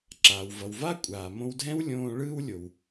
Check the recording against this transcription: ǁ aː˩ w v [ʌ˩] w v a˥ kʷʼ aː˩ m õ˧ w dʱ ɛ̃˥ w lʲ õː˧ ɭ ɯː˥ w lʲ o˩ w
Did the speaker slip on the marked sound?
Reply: no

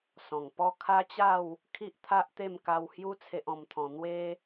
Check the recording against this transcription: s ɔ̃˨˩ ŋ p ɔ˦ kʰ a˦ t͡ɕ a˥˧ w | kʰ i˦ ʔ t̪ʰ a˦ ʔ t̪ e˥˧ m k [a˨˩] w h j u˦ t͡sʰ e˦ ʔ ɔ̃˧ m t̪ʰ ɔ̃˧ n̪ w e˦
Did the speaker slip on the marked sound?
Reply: yes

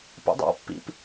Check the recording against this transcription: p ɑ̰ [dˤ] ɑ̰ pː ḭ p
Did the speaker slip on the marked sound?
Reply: no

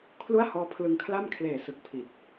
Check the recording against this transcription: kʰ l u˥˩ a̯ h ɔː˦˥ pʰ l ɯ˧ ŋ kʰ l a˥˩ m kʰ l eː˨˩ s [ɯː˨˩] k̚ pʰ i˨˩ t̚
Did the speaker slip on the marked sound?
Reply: yes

